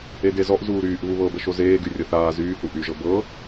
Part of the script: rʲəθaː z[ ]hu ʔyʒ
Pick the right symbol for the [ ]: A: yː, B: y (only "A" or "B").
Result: A